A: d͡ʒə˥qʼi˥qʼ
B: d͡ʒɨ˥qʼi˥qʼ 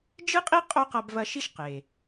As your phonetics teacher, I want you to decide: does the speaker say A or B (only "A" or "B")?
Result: B